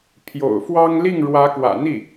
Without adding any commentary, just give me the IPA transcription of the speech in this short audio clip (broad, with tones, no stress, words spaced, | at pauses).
pʰjo̰˨˩ʊ̯fwɑ˥ŋ li˥˩ŋɻwä˧˥kwä̰˨˩n̪i˥˩